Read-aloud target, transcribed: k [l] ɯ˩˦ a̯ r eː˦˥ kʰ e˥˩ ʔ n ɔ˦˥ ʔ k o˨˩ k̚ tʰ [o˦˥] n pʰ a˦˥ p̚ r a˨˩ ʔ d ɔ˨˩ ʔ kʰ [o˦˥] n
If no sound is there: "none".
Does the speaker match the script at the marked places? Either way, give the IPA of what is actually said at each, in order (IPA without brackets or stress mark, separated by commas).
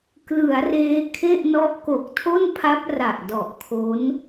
l, o˥˩, o˦˥